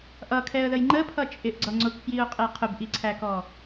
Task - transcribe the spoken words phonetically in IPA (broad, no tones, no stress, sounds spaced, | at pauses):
ʔ ʌ kʰ ɛ ə̯ ð ə j ŋ͡ǃ ə pʰ ʌ t͡ʃʼ ɪ ʔ ɡ͡ǀ ʌ ŋ͡ǀ ʊ k f j i ʊ̯ qʼ ɛ qʰ ʊ b ʔ i ǀʰ æ k ɔ